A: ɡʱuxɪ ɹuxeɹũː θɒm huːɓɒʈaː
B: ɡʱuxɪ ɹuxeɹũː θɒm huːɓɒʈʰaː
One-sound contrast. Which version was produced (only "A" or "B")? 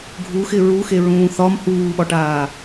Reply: A